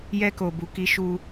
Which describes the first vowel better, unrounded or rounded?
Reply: unrounded